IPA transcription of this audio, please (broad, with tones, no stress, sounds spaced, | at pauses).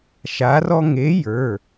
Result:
ʃ a˨˥ r ɔ˦ ŋ e˨˥ j ə˞˩˧˩